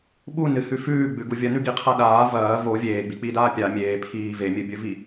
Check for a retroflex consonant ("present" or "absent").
absent